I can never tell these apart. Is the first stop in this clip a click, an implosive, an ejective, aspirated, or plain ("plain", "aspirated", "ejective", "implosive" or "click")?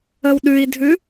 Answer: implosive